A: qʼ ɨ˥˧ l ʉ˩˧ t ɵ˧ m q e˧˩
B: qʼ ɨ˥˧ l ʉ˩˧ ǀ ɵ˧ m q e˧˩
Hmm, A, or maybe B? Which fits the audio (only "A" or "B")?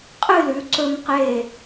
B